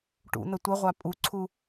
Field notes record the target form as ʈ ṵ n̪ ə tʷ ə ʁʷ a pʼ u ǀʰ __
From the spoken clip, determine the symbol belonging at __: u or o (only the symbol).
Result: u